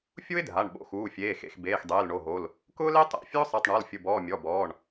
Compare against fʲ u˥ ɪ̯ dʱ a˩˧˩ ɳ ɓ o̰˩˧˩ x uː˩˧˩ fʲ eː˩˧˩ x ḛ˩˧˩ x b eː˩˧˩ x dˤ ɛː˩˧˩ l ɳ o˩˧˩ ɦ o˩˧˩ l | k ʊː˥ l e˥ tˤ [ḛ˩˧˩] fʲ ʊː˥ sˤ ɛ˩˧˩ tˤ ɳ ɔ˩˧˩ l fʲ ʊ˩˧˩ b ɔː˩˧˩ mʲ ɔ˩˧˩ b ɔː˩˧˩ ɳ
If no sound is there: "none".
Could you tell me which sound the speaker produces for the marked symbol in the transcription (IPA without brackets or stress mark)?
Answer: ɛ̰˩˧˩